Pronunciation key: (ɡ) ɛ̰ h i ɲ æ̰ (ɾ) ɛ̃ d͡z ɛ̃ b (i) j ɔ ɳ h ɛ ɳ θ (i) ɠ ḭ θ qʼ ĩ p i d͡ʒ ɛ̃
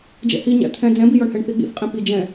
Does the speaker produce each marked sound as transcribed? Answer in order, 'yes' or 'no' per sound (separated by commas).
no, no, yes, yes